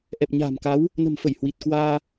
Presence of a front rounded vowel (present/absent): absent